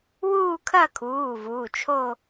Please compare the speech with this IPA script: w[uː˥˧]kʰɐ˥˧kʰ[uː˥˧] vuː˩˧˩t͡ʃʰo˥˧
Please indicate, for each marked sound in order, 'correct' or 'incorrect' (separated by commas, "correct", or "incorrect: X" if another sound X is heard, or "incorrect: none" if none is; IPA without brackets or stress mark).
correct, incorrect: uː˩˧˩